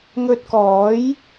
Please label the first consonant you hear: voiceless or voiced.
voiced